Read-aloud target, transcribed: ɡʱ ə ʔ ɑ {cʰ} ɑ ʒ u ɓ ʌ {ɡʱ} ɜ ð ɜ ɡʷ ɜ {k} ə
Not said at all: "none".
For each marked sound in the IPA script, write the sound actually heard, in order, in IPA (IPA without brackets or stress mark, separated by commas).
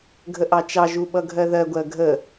t͡ʃ, ɡʱ, ɡʱ